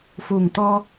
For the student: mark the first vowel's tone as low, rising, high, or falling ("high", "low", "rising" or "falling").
low